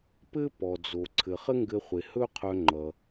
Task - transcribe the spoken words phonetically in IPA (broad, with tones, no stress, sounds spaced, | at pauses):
p ɘ˥ p ɔ˩ d͡z o˩ ǀʰ ɘ˩ χ ɘ˥ ŋ ɡ ɘ˧ χʷ e˩ h ɵ˥ qʰ œ˧ ŋ͡ǃ ʌ˩